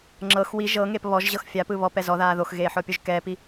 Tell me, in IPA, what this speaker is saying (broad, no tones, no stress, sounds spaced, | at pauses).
ŋ͡ǁ ɤ x w i ʒ ɤ ŋ e p β ɔ ʒ ʑ ɤ x fʲ a p ɯ β ɔ p ɛ z ɔ ð aː ð o x ɣ eː ħ ɔ pʲ o ʒ k ɛ p i